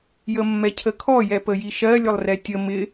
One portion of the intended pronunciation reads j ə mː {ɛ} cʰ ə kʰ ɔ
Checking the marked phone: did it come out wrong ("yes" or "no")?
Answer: no